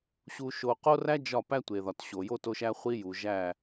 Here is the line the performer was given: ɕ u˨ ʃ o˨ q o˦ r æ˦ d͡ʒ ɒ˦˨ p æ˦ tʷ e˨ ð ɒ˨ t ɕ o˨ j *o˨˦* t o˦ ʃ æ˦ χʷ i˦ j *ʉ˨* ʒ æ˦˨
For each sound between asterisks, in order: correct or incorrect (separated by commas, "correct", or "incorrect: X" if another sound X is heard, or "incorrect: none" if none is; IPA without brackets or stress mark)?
incorrect: o˦, incorrect: u˨